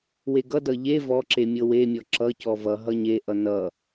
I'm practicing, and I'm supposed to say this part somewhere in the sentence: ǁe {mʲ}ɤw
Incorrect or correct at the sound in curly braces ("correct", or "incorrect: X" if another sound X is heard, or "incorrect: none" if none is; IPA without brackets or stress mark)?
correct